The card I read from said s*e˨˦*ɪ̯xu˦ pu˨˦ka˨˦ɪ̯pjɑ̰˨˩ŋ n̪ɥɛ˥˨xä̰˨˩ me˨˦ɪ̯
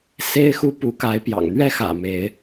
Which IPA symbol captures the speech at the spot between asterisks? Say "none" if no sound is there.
e˦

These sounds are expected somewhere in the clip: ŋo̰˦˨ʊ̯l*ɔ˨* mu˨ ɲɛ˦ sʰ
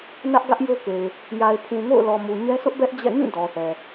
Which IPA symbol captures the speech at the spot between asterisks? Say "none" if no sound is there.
ɔ˨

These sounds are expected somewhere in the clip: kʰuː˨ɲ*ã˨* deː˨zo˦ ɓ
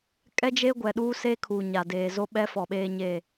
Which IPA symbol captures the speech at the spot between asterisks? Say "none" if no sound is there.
a˨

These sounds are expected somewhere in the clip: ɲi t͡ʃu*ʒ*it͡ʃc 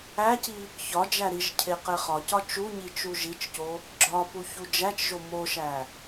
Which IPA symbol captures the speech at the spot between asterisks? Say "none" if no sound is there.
ʒ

